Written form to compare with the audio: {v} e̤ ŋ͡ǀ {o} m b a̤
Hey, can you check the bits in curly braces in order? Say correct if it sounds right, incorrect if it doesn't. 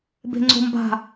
incorrect, incorrect

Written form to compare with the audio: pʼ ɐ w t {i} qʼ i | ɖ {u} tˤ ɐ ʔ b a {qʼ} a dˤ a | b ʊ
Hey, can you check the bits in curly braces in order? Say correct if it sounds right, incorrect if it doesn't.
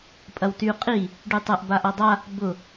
incorrect, incorrect, incorrect

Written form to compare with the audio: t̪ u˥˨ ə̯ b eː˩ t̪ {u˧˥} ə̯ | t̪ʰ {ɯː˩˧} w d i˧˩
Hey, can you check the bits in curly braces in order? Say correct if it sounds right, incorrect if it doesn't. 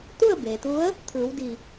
correct, correct

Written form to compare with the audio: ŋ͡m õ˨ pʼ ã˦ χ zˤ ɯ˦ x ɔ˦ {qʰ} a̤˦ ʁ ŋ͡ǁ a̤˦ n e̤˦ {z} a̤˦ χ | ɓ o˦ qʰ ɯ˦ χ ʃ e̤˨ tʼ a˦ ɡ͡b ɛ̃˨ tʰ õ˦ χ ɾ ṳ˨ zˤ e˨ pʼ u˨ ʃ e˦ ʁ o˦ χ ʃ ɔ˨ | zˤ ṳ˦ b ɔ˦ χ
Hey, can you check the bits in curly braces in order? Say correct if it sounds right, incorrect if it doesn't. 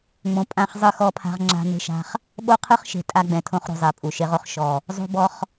incorrect, incorrect

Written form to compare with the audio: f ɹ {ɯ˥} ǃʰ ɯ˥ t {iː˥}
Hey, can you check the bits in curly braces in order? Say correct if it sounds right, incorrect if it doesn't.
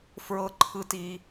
incorrect, correct

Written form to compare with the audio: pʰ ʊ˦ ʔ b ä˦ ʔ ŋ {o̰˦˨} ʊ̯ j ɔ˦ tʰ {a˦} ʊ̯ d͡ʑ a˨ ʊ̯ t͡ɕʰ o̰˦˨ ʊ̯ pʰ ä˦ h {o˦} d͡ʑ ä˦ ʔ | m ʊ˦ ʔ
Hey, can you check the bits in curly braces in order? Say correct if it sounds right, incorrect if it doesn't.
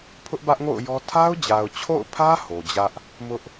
correct, correct, incorrect

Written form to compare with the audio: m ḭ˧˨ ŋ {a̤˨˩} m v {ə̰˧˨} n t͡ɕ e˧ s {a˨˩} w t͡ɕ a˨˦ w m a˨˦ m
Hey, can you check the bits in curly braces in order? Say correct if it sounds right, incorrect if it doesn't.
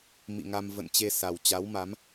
incorrect, correct, correct

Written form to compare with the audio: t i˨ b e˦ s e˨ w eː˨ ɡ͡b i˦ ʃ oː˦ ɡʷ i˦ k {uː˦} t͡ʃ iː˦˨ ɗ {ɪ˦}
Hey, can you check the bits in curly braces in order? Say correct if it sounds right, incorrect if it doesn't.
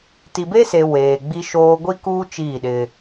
correct, correct

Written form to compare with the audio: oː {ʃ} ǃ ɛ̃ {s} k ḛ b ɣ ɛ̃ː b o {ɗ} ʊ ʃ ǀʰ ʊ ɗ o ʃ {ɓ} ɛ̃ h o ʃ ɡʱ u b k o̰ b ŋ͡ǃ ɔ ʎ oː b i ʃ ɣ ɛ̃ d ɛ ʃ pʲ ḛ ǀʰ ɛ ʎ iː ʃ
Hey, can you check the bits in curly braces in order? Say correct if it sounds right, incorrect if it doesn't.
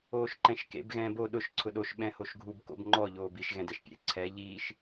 correct, incorrect, correct, correct

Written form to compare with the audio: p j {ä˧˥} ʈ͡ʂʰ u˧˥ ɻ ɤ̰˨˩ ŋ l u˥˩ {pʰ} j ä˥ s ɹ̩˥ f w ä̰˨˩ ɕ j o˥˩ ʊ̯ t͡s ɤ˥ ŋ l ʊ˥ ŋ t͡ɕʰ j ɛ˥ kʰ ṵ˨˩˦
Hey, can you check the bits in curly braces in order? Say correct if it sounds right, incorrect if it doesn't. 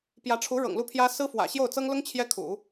correct, correct

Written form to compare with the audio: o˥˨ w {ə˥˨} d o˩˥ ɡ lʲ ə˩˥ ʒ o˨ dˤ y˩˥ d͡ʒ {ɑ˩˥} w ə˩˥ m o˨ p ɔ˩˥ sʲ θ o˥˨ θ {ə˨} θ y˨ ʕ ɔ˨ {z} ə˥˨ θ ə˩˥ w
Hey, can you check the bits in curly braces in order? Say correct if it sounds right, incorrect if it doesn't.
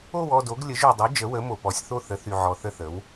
incorrect, incorrect, incorrect, incorrect

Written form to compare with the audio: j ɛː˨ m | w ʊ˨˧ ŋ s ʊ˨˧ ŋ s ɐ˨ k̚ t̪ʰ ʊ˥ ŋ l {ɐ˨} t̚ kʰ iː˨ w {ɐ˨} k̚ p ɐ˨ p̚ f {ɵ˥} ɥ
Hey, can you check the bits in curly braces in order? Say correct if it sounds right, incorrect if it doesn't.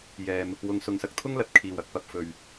correct, correct, incorrect

